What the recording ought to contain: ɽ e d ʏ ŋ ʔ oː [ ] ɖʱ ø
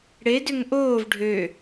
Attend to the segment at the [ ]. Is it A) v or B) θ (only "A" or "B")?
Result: A